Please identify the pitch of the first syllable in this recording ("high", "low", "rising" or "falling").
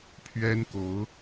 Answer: high